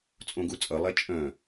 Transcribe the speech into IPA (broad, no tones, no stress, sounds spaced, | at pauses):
t͡sʼ õ ɡ u t͡sʼ ʌ lˠ ɛ t͡ʃʼ œ̃